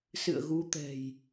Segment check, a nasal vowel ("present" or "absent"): absent